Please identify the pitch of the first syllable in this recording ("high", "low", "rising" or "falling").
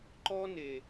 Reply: high